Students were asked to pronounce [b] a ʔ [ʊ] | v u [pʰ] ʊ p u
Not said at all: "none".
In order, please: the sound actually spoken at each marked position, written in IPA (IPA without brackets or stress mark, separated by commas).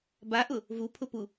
b, ʊ, pʰ